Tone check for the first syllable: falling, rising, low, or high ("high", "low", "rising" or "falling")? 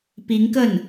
rising